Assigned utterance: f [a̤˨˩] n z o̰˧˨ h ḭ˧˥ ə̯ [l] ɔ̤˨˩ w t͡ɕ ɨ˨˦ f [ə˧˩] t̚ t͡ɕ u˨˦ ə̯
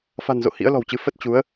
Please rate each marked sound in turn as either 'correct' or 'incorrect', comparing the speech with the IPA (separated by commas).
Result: correct, correct, incorrect